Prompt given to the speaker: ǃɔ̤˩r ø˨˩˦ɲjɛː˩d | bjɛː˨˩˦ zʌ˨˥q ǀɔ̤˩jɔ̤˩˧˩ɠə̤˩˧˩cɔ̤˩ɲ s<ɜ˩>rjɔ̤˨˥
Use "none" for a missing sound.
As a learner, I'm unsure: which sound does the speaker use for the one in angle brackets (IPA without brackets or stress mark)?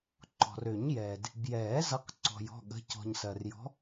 ɜ˩